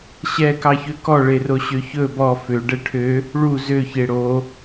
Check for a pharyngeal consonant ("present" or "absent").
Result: absent